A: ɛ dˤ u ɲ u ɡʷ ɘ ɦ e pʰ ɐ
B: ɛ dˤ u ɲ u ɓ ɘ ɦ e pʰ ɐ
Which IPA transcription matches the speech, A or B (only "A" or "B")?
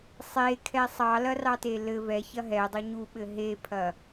B